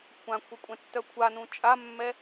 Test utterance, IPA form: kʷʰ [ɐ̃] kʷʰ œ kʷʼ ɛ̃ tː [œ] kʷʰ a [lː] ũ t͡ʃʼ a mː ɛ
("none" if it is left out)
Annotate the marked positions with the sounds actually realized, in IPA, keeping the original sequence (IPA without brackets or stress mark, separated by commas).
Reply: ã, œ, n